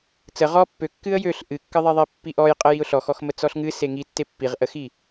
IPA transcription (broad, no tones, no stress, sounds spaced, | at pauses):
t͡s ə ʁ ɔ pː ø kː ɨ ə̯ j ø ɬ ʔ ɨ kː ɨ ðˤ e ðˤ i pː i ʔ ɔ j qʼ ə j i ʊ̯ ɬ ɔ x ɔ x m ə t͡s ɔ ɬ ŋ ɨ s e ŋ i tː e pː i ʁ ʔ ə x i